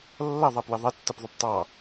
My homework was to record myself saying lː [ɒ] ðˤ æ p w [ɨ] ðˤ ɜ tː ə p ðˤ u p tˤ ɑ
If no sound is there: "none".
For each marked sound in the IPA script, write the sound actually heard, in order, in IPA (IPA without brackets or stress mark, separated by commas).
ʌ, ɪ